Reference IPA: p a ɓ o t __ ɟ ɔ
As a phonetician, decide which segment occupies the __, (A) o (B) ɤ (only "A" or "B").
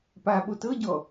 B